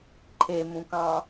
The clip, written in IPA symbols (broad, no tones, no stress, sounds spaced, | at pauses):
ǃʰ e m ũ k ɑ̃